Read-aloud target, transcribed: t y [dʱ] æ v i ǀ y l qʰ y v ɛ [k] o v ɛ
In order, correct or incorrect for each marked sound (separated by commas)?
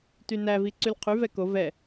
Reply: incorrect, correct